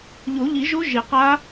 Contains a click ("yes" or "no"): no